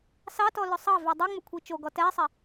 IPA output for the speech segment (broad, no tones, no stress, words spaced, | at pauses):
sɑtɔ lɵsˤɑvy dˤuŋ͡mɵ kʷʰit͡ʃoɡɔ tɛsˤɛ